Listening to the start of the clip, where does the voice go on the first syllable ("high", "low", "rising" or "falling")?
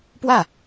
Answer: falling